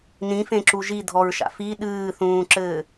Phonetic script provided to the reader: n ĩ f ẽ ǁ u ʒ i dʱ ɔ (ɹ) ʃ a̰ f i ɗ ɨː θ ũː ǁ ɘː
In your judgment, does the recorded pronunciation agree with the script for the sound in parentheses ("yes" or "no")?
yes